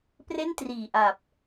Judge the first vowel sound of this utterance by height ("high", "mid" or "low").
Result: mid